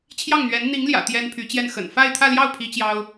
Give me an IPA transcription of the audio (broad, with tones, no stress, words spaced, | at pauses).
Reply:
t͡ɕʰjɑ˥˩ŋn̪ɥɛ˧˥n n̪i˧˥ŋljä̰˨˩ t̪jɛ˥npʰy˧˥t͡ɕjɛ˥˩n xə̰˨˩nfa˥˧ɪ̯t̪ʰä˥˧ljɑ˥˩ʊ̯ pʰi˥t͡ɕjɑ˥ʊ̯